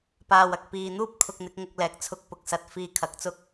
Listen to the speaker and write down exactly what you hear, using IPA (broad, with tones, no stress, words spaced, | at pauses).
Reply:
paː˨wɐ˨k̚ piː˨n̪uː˥p̚ kʰʊ˧k̚n̪ɪ˨˥k̚ŋʊ˧k̚lɛː˨k̚ t͡sʰʊ˧k̚pʊ˨k̚sɐ˨˥t̚ fiː˧kʰɐ˨˥k̚t͡sʊ˥k̚